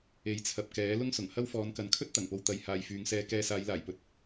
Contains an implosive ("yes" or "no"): no